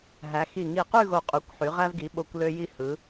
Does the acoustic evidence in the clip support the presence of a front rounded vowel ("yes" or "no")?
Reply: yes